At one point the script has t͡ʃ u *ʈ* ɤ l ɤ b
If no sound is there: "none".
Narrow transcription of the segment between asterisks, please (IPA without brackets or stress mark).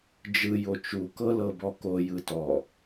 k